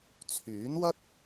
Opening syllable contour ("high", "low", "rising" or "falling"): rising